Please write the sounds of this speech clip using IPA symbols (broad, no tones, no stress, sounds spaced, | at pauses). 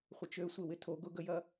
χʷ ə t͡ʃ ø sʷ e w ɪ tʰ o ɡ ʊ ɡ ə j ɐ